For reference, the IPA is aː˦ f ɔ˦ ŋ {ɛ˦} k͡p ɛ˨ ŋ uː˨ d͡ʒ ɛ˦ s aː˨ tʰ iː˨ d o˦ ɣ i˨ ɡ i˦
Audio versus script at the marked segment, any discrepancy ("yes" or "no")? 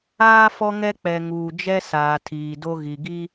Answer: no